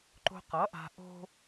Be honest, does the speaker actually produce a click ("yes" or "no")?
yes